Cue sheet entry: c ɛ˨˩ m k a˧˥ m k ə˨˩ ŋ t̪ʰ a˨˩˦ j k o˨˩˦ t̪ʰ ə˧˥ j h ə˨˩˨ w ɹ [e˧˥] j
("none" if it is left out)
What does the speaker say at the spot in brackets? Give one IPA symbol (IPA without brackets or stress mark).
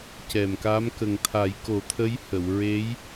e˧˥